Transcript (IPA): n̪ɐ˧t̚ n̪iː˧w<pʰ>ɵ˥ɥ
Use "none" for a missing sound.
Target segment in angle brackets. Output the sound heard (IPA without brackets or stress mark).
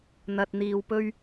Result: p